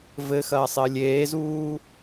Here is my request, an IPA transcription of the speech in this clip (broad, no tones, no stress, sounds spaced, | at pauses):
v ɘ x ɐː sˤ ɘ lʲ eː z uː